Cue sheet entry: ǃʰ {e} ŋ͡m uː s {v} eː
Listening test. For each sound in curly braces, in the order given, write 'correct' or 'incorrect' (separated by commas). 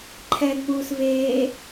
incorrect, correct